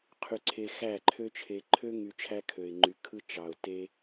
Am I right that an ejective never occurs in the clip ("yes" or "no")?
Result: yes